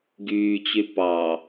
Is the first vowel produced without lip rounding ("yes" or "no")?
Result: no